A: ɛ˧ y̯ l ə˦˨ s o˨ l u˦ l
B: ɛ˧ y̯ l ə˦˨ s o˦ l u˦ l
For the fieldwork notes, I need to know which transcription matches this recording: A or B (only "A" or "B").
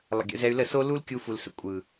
B